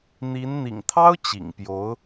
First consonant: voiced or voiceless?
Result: voiced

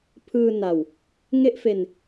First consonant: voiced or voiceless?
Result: voiceless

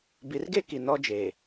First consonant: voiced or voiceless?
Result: voiced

